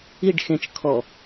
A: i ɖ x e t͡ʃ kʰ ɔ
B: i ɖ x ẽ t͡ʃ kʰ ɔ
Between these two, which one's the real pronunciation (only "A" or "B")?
B